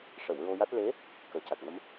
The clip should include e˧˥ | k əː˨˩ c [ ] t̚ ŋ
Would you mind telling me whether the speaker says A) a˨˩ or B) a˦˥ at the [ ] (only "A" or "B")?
A